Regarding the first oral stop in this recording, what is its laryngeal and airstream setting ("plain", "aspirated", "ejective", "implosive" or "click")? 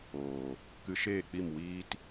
plain